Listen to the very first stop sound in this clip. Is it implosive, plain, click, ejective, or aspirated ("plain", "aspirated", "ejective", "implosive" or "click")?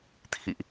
aspirated